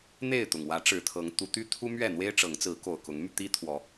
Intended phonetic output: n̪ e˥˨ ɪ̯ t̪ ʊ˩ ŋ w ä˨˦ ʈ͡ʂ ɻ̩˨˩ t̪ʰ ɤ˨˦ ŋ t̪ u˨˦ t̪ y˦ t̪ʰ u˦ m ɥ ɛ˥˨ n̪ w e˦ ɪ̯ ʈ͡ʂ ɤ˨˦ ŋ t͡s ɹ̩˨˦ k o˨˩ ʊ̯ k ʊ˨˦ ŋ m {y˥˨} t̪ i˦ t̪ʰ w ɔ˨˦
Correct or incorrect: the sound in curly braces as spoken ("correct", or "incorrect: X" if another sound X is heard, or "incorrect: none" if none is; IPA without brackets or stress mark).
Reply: incorrect: y˧